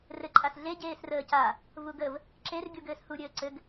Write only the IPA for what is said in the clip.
r ɘ ǃʼ a s ɮ e ɟ eː s r əː c a | v u ɡ ə v | ǁ e r ɡʲ u ɡ ɘː s h u ɾʲ ɘː ǀ ɘ ɡ

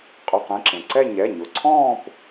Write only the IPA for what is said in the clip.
qʼ ʏ˩˧˩ q ẽ˥˧ ǁ ẽ˩ ǀ ɛ˥˧ ɲ ɛ˩˧˩ ɲ ʊ˩˧˩ ǀʰ ɔ̃ː˥˧ p

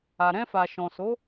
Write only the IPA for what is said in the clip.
a˨ ɾ ɛ̃˧ f a˨ ʃ ɔ̃˨ s o˨˦

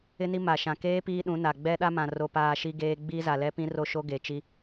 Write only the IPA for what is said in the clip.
ɪ˦ n i˦ m a˨ ʃ ã˨ k eː˦ p iː˦ ɗ ũ˨˦ n a˨ ɡ͡b ɛ˦ ɗ a˦ m ã˨ r o˦ p aː˦ ʃ i˦ ɡ eː˦ ɡ͡b iː˦ z a˨ l ɛ˦ p ĩ˦ r o˦ ʃ o˦ ɡ e˨ t͡ʃ i˦

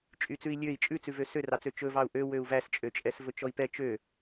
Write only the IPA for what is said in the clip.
t͡ʃʼ y t͡s ʉ i̯ lʲ ø i̯ t͡ʃʼ ʉ t͡s ʉ v ø s ø r ɑ t͡s ø t͡ʃ ɵ v ɑ u̯ ʔ ø w ø u̯ v æ s t͡ʃʼ ø t͡ʃʼ ɛ s v ɵ t͡ʃ ɔ i̯ p ɛ t͡ʃ ø

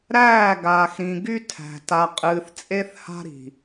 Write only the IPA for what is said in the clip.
ɾ æː˦˨ ɡ aː˨ x ɾ ĩ˨ ɡ y˦ tʰ æ̤˨ t a˨ qʼ ɨː˨ θ t͡sʼ e˦ θ h a̤˦ ɾ i̤˨

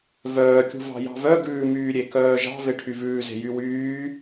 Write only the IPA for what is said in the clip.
v œː kʲ ṳ v ɑ̤ j ɑ̤ v œ ɡ ʉː m yː ɾʲ e k œː ʒ ɑ̤ v e ʈʰ y v ʉː z e̤ j y w yː

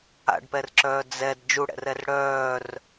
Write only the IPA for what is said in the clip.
a̰ ɖ p ɛ r ǁ œː d͡z ɛ d d͡ʒ u ɽ ɛ̰ r ɛ r ɽ œː r

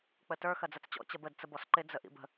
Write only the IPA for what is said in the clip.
k͡p ə t ə˞ x ɐ d͡z ɐ t͡s t͡ɕ ɔ̰ t͡ɕ ɐ b ə d t͡s ə b ɔ s ǃ ɪ d͡z ə ʔ ḭ b ə̤

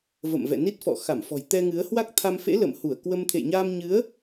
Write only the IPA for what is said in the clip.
v ə̰˧˨ m v ɛ̰˧˨ n i˦˥ t̚ f ɔ̰˧˨ x a˧˩ m f ɔ̤˨˩ j t̪ ɛ˧ ŋ ɨ˨˦ ə̯ h w a˦˥ k̚ t̪ʰ a˧ m f ḛ˧˥ l ə̰˧˨ m h u˧˩ ə̯ k w ə˧ m t̪ʰ ḛ˧˨ j ɲ aː˧ m ɲ ɨ˨˦ ə̯

